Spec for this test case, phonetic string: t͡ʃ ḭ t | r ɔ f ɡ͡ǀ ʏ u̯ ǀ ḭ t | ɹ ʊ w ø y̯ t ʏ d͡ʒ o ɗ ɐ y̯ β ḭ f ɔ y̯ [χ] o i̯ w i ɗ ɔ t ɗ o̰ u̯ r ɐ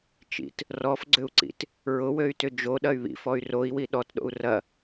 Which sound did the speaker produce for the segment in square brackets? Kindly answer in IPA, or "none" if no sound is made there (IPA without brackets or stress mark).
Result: r